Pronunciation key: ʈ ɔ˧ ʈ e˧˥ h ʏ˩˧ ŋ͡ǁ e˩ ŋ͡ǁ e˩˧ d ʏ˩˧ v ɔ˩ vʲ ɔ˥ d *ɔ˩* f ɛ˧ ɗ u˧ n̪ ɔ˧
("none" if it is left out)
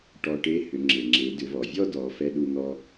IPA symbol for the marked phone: ɔ˩˧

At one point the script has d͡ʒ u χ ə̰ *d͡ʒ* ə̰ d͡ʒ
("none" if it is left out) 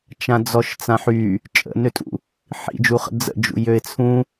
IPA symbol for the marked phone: d͡z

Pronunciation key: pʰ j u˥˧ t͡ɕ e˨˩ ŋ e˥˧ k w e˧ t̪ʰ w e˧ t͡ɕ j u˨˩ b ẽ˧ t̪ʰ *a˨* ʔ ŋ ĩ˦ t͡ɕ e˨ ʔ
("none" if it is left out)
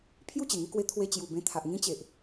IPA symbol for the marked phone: a˨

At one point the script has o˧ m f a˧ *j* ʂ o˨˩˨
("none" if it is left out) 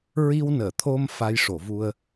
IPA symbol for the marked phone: j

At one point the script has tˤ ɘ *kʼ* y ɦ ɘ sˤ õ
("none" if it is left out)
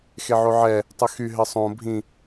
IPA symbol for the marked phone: x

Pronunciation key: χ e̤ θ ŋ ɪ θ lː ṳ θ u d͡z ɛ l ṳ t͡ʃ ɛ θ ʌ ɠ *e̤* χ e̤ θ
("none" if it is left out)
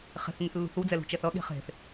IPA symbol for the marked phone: e̤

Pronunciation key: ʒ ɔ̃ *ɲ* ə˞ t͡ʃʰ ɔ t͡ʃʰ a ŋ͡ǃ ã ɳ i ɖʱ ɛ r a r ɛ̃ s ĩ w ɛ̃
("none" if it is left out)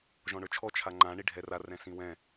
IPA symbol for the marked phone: ɳ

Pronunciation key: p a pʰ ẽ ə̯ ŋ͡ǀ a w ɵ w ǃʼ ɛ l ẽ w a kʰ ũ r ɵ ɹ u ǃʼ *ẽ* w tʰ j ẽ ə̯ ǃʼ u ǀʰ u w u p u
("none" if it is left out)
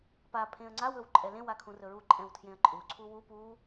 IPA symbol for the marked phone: ɛ̃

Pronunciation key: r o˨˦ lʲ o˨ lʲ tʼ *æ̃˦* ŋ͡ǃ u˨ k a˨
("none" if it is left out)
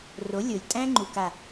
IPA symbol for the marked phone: æ̃˦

